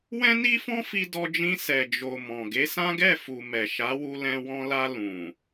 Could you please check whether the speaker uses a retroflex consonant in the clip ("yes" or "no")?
no